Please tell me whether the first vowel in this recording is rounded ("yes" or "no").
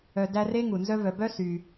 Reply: yes